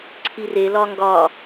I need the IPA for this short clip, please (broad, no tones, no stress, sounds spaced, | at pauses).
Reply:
ǀʰ i r e l ɒ ŋ ɡ ɒ